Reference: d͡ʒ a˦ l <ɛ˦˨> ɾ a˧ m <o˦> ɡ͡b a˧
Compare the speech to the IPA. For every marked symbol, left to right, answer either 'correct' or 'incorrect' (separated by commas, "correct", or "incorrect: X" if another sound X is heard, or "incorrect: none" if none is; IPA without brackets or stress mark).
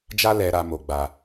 incorrect: ɛ˧, incorrect: o˧